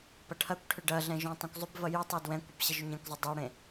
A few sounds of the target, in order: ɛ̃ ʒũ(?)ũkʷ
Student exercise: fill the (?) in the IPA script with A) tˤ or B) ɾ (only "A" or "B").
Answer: A